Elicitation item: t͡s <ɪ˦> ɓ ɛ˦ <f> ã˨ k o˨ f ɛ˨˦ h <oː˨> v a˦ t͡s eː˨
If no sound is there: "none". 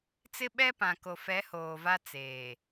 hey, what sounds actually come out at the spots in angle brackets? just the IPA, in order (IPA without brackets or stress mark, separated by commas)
ɪ˦, p, oː˨